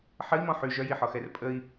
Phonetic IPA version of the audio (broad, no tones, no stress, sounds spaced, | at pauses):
ħ ə i̯ m ɔ̃ ħ y ʒ œ j i ħ ɔ x ɛ r pʼ ə i̯